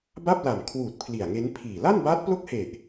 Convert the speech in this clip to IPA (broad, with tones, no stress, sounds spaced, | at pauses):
b a˥˩ p̚ l a˨˩ m kʰ w uː˨˩ t̚ pʰ l i˨˩ a̯ ŋ e˦˥ n pʰ iː˨˩ l a˥˩ n b aː˦˥ t̚ p l o˥˩ k̚ h e˨˩ ʔ